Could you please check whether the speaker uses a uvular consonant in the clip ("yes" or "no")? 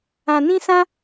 no